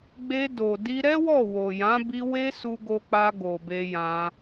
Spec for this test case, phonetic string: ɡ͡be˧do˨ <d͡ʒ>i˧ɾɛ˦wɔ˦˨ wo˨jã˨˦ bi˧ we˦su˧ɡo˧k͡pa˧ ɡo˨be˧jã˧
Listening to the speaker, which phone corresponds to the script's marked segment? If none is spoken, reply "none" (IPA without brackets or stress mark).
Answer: d